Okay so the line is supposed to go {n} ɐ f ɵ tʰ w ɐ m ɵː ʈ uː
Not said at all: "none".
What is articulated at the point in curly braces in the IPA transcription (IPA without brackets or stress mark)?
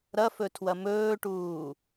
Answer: ɾ